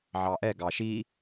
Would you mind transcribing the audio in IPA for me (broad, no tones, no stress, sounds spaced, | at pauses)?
ʕ ɑ ʔ ɛ ɡ ɑ ʃ i